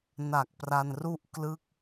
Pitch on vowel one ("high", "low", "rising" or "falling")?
low